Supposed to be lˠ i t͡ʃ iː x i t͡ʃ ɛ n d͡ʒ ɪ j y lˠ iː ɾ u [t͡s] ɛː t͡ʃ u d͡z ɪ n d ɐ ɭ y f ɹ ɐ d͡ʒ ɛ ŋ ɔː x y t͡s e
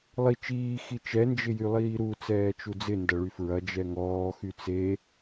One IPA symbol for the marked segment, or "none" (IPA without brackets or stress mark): t͡s